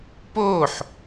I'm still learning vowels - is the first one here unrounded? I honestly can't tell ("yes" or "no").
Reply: no